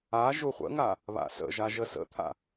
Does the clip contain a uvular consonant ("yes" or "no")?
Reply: yes